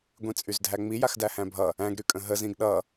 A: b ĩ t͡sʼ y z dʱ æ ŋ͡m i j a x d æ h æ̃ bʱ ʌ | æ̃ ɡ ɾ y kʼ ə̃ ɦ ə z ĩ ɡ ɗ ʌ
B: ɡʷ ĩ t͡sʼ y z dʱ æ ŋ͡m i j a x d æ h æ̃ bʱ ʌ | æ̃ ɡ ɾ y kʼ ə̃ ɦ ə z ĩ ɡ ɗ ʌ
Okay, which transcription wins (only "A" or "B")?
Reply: B